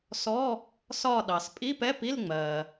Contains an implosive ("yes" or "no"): yes